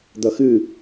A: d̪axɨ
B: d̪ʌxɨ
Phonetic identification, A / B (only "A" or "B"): B